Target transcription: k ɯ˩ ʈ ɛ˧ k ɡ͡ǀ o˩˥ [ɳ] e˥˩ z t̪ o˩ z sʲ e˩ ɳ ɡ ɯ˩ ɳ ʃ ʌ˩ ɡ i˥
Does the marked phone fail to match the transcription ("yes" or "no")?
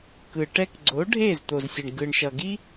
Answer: yes